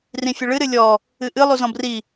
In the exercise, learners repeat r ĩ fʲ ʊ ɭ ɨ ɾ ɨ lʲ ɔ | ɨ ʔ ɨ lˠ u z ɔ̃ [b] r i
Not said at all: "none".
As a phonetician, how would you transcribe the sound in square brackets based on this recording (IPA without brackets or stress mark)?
b